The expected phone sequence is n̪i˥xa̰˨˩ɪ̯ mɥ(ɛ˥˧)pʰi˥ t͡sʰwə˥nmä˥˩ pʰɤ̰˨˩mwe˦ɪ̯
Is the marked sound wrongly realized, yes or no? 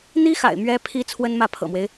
yes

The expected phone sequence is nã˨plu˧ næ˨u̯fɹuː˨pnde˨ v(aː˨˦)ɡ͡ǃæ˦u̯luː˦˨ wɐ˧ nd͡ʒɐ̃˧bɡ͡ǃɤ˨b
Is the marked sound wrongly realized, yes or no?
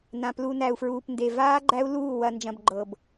yes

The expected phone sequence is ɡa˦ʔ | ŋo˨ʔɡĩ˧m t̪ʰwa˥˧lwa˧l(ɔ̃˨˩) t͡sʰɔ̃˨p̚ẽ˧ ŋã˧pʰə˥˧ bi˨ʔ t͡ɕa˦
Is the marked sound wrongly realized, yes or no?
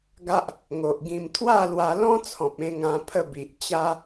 yes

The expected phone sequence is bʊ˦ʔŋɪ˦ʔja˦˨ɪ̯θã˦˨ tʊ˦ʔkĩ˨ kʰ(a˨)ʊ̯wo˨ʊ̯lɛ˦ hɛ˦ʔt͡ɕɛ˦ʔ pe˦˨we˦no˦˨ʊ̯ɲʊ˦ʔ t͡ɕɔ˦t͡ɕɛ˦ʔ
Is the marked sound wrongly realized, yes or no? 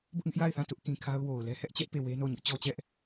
yes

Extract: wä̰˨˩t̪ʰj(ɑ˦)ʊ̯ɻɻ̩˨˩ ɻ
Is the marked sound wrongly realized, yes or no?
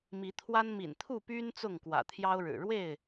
no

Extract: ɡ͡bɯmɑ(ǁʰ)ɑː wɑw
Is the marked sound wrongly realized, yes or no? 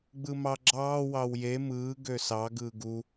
yes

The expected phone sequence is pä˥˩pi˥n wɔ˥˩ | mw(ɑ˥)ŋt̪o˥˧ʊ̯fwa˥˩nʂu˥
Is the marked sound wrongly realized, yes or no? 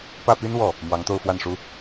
yes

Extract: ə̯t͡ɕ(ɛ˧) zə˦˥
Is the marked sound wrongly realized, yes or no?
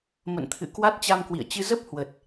yes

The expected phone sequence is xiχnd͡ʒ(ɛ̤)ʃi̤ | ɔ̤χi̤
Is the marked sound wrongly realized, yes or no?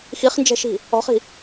no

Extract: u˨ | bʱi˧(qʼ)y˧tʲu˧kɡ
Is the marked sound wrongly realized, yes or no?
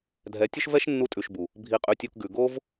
no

